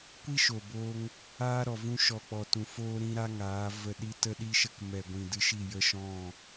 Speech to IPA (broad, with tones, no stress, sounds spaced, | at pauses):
kʷ i˦ ʃ o˨ b o˧ ŋ | aː˦ ɾ ɔ˨ v ũ˧ ʃ ɔ˨ k͡p ɔ˨ t ũ˨ f oː˦ ɾ ĩ˦ ɾ a˦ ŋ aː˨˦ v ə˧ ɗ i˧ t ə˧ ɗ i˧ ʃ ə˧ k m ɛ˨ ɡʷ ĩ˨ d ɨ˧ ʃ i˦˨ j ə˧ ʃ ɔ̃˦˨